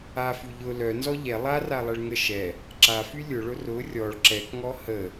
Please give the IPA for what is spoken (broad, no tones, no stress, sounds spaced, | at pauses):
a f y ʎ ʊ l œ n z ɔ ʎ ɛ lˠ a r a lˠ ɛ ɭ ŋ ə ʃ ɛ | ǁ a f y lʲ ʊ ɭ ʊ r ʊ rʲ ɔ ɭ ǁ ɛ k ŋ ɔ h ə